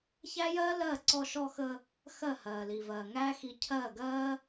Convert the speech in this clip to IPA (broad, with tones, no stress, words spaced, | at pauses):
çæ˦jɜː˦lɜː˦˨ ǀɔ˧ʃɔ˧xə˧ | xɜ˦˨hɜː˨li˨vɜː˨ ŋæː˦xi˧ cʰɜː˦˨ɡɜː˦